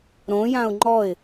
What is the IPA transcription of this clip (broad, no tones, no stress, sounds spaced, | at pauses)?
ɾ õ j ã ʊ̯ ŋ͡ǃ ɔ ɪ̯